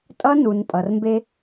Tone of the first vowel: high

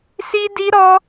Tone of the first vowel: high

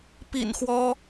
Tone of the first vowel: low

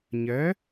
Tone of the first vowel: rising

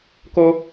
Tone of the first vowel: high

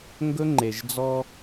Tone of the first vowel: high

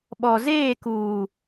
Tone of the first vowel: low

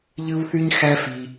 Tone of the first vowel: high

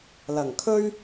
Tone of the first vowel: low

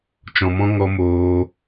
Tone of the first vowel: low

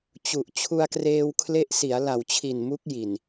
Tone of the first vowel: low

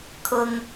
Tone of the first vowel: high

